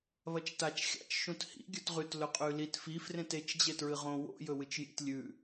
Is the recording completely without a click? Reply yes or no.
yes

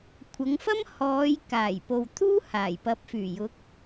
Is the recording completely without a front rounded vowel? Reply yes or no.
no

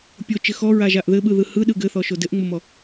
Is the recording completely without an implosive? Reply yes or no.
no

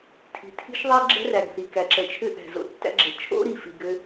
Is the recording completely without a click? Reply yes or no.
no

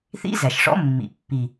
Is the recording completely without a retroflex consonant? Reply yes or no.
no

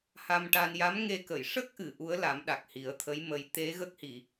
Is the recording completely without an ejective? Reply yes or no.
yes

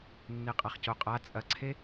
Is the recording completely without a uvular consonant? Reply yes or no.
no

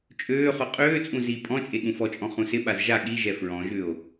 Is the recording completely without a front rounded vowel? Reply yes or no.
no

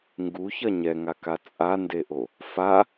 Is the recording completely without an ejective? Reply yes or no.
no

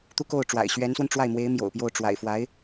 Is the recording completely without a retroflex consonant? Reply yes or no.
no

